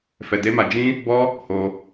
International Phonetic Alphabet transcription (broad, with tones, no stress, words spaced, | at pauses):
fɛ˧de˦ma˧ d͡ʒĩ˦ | bɔ˦ | ho˧